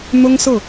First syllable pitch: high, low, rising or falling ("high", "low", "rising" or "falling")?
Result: high